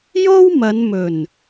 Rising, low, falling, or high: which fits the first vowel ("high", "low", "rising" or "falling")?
high